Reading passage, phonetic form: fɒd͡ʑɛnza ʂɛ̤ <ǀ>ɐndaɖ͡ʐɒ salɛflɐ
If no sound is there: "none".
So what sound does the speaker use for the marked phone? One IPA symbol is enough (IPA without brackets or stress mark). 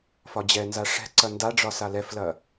ǀ